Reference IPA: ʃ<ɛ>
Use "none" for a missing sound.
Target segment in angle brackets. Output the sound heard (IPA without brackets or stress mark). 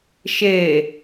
e